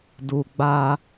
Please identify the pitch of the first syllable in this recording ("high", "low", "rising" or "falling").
low